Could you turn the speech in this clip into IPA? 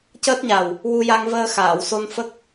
c əː˦˥ t̚ ɲ a˨˩ w | w u˧ j a˧ ŋ v əː˧ x aː˨˩˨ w s o˧ n f ə˦˥ k̚

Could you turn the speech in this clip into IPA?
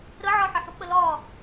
ɾ ə ʕ ɒ ħ ə ħ ṳ k͡p ə l ɒ

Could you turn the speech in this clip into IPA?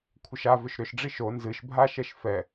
kʷʰ ə ʃ a v ʏ ʃ ɾ ʏ ʃ ɖ͡ʐ i ʃ o n z ɨ ʃ bʱ a ʃ ɛ ʃ f ɛ

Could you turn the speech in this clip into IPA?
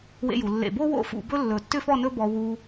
w ḛ˧ j u˩˧ lː ḛ˧˩ b o˥ w o̰˥˧ f ṵ˧ b ɵ˥ lː ɵ˧˩ tː ʏ˥ f ɔ˥˧ n ɵ˥ b ɔ˧ w u˧

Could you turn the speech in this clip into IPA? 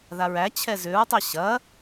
ð a ɹ æ t͡ɕʰ ɛ z ʏ ɹ tˤ ɛ ɕ ɐ

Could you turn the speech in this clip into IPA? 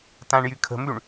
t ã ɳ j y kʰ ə̤ m y ɳ

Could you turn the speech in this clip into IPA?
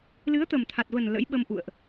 l ɨ˨˦ ə̯ t̪ ə˨˩ m t̪ʰ a˨˩ t̚ v ə˨˩ n l ə̰˧˥ j ɓ ə˧ m ʔ ṵ˧˨ ə̯ ʔ

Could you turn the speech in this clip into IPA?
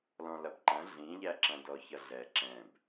l ɔ̃ l ɐ b ǃ ɐ̃ ɮ ĩ ʎ æ ǁ ɐ̃ d ɔ ç ʌ ɮ ɛ ǁ ɛ̃ b

